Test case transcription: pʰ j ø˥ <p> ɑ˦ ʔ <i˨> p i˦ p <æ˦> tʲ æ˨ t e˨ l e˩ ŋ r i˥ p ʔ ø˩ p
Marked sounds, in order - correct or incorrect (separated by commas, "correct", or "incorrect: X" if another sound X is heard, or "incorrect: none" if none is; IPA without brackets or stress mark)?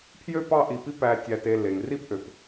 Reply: correct, correct, incorrect: æ˨